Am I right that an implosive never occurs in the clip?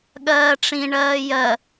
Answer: no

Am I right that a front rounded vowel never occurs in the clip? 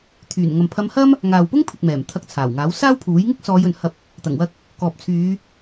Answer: no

